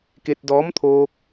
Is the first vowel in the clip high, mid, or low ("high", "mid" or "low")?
mid